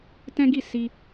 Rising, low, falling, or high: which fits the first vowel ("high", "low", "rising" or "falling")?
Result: high